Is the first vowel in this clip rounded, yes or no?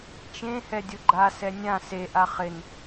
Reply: no